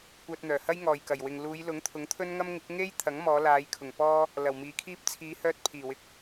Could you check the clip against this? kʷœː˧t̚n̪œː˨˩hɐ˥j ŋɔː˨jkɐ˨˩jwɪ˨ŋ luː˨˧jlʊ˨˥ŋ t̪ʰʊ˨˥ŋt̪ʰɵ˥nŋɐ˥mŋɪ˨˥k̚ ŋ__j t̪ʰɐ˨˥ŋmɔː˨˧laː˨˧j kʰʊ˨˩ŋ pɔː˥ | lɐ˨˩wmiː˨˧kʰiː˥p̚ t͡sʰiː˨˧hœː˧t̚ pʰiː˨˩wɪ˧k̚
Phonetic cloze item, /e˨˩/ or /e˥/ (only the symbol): e˥